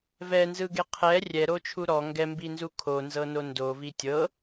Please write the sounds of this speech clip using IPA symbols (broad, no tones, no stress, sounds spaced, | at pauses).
v ɛ n z ɯ ɡ e qʰ ɛ rʲ ɛ ɾ o t͡ʃʰ u ɾ ɔ ŋ ɡ ɛ m b i n z u kʰ o n z ɤ n o n d o v i tʲ ɤ